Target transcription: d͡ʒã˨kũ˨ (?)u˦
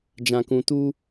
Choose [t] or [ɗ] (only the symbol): t